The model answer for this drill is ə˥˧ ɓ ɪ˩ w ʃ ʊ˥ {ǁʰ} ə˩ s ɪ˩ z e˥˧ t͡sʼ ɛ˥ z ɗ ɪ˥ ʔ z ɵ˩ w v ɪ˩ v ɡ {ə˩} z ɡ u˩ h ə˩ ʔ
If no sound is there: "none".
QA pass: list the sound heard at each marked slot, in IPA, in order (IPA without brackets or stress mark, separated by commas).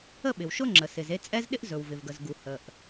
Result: ŋ͡ǁ, ə˩